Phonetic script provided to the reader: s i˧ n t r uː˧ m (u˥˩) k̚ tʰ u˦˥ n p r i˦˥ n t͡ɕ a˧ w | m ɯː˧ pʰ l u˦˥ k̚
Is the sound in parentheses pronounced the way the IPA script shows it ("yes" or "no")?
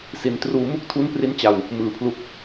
yes